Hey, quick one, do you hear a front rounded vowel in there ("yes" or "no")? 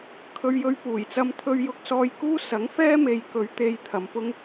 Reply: no